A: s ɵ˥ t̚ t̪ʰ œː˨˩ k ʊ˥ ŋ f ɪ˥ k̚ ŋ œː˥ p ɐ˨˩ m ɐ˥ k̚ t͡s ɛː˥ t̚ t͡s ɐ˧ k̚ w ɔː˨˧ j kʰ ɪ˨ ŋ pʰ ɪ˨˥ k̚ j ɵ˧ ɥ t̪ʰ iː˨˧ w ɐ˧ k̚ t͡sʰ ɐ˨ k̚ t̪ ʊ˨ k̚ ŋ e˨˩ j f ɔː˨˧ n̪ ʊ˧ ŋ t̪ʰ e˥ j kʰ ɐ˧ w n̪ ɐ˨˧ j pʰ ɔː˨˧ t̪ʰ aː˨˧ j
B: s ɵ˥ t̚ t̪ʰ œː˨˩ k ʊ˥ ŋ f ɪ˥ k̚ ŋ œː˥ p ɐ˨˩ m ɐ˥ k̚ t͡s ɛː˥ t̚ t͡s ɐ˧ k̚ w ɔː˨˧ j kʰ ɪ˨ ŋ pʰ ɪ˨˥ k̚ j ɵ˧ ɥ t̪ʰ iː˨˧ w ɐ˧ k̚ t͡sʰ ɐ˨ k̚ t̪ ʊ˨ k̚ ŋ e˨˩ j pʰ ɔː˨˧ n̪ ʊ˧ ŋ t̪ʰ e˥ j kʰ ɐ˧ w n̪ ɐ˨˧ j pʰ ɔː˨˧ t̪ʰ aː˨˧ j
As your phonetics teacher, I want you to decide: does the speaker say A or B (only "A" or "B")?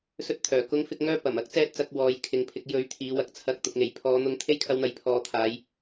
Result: B